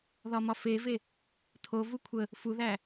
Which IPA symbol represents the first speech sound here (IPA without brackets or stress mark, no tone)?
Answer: ð